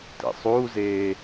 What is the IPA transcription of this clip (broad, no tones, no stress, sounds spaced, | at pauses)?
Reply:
t ḛ sˤ uː z eː